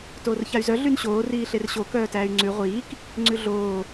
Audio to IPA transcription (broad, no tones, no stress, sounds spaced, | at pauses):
t oː r ç a y̯ z œ ɮ y n ɕ oː r iː ɬ e r ɕ o k œː t æː y̯ ŋ͡ǀ ʉ ʁʷ iː k | ŋ͡ǀ ʉ ɮ oː